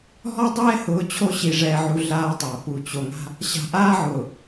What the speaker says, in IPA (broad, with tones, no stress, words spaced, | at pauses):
ɦɔ˦dˤɛː˦hʊː˨˦ t͡ɕʰo˦ɕi˨ʐɛː˨ʕu˨ ɮaː˦tˤa˨ pu˨t͡ɕo˨ŋa̤˦ | ɕa̤˨ʔaː˦ʕʊː˨